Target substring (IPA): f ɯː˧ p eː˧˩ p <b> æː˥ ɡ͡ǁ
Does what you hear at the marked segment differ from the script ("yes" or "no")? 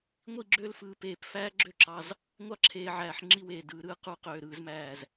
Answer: yes